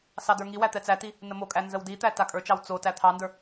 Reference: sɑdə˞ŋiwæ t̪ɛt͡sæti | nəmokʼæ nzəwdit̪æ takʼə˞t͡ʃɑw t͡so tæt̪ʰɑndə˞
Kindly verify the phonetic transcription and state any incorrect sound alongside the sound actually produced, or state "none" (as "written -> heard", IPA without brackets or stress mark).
none